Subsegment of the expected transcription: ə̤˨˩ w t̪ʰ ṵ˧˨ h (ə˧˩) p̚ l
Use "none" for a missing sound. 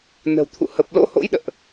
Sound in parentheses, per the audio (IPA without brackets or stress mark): ə˨˩